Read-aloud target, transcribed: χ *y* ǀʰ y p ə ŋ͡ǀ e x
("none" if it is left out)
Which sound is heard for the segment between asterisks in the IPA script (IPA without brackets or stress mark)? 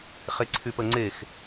e